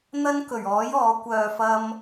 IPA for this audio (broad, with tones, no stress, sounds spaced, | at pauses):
n̪ ɐ˥ n k ɵ˨˩ ɥ ɔː˨˥ j ɔː˨˥ kʷ œː˧ f ɐ˥ m